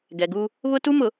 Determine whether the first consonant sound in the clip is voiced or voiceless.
voiced